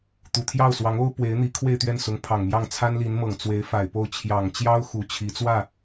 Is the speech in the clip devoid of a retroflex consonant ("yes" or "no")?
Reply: yes